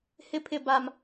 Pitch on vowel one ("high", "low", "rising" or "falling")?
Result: high